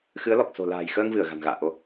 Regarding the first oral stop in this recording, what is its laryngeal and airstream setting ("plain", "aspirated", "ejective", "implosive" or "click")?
plain